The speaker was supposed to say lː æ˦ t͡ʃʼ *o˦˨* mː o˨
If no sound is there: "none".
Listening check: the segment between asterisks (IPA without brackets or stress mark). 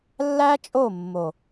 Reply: o˦˨